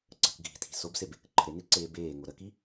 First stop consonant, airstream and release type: click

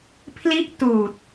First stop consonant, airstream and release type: aspirated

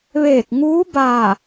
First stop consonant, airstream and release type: plain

